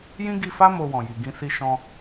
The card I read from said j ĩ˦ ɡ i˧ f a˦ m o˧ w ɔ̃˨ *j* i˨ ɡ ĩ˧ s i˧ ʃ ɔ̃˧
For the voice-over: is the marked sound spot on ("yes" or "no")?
yes